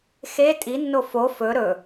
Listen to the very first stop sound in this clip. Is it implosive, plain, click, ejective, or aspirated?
ejective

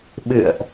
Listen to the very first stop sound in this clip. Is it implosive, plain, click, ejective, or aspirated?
implosive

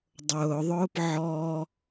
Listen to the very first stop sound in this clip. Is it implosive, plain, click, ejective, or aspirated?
plain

